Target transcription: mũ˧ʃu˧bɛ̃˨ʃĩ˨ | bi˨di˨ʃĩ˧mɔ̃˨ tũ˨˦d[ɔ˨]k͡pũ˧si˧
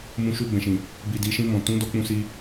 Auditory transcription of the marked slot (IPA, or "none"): ɔ˧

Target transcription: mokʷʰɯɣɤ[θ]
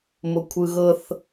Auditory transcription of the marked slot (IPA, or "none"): θ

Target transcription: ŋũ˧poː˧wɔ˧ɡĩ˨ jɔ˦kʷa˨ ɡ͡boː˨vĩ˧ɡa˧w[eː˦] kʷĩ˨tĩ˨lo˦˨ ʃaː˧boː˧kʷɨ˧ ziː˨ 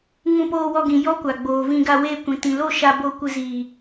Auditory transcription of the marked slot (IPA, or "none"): eː˧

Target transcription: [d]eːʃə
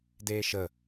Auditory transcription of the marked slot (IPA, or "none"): d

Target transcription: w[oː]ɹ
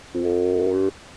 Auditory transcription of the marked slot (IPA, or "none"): oː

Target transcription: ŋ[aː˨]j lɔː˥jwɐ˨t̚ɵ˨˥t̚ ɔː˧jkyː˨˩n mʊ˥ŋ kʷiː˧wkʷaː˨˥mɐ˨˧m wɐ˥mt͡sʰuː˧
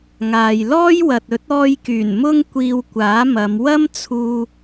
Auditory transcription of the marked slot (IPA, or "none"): aː˨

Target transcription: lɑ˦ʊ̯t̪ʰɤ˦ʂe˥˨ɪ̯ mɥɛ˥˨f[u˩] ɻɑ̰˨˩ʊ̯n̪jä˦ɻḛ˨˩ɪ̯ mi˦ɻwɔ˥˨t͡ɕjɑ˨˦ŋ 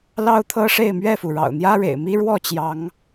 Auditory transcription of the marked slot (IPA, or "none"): u˩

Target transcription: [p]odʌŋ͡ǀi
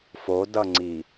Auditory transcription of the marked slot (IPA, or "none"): f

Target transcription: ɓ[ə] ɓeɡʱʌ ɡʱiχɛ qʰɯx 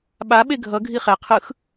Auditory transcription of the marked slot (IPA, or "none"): a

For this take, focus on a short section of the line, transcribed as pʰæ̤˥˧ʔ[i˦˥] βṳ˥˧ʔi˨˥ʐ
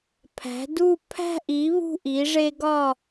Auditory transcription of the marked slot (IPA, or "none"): i˨˥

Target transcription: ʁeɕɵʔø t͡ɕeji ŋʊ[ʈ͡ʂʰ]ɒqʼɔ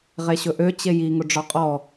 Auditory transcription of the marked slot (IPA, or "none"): ɖ͡ʐ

